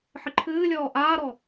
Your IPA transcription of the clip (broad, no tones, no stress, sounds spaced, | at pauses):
ħ ɨ ǃʰ ɨː lʲ ɔː ʔ aː ɾ ɔ